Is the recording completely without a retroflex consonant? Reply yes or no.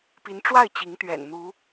no